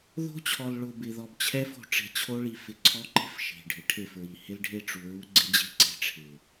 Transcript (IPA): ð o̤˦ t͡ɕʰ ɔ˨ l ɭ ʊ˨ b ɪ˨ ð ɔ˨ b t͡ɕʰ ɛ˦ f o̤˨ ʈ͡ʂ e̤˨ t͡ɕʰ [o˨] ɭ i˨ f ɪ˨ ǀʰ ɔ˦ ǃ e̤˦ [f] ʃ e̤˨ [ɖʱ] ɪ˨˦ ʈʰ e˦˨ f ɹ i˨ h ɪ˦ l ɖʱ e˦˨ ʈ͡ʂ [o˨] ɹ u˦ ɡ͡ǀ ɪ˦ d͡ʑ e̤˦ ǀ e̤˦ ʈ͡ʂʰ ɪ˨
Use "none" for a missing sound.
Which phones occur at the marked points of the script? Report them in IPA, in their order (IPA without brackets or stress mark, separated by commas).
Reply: o˦, f, ɖʱ, u˨